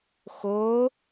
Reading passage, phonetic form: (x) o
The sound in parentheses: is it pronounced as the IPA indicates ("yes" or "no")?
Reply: yes